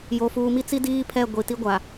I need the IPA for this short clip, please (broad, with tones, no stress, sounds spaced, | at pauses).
j o˨ f uː˨ m i˦ t͡s i˦ d iː˦ pʰ ɛ˦˨ ɡʷ i˨ t i˦ ɡʷ a˨